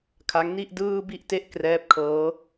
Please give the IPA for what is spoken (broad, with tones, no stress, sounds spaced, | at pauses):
kʰ a˦˥ ŋ n i˥˩ ʔ d ɯː˧ b i˥˩ ʔ t e˥˩ ʔ k r ɛː˦˥ p̚ kʰ ɤː˦˥